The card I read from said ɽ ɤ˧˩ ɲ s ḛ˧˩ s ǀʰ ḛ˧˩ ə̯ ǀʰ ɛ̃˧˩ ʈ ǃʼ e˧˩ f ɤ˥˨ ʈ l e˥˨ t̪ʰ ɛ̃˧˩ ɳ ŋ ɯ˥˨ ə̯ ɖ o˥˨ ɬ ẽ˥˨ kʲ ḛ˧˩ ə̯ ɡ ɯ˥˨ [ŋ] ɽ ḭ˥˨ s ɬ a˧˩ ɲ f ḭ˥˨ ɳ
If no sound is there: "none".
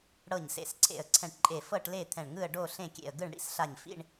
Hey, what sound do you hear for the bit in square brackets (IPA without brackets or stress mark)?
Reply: ɳ